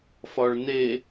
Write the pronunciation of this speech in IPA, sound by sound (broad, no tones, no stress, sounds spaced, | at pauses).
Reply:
f ɒ ɭ n e